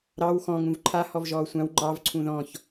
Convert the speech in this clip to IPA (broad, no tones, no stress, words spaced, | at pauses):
ɾɑw xɔ̃ ŋũvǃʰa hɔvʒɔːsʷãw ŋ͡ǃɑv ǀʰũðɔ̃ç